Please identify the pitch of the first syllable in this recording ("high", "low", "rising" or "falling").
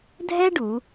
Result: high